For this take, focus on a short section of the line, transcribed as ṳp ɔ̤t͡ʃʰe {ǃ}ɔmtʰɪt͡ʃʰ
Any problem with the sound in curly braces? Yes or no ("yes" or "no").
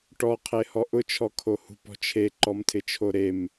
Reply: no